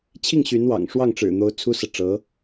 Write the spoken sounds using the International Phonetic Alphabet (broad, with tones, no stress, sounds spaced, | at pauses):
t͡ɕʰ i˥˩ ŋ ɕ y˧˥ n w ɑ̰˨˩ ŋ ʂ w ɑ˥˩ ŋ ʈ͡ʂ ɻ̩˨˩ n̪ o˧˥ ʊ̯ t͡sʰ u˥ s ɤ˨ ʈ͡ʂ ɤ˧˥